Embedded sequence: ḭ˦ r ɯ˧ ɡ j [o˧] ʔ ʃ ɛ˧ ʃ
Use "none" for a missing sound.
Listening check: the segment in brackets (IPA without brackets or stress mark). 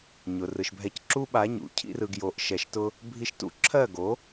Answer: o˧